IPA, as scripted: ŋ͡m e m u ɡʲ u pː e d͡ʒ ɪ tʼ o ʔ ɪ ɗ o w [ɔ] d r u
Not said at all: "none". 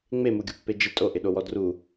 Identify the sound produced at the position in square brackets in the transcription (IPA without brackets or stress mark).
ɔ